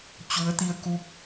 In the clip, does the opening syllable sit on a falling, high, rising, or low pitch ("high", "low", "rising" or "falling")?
rising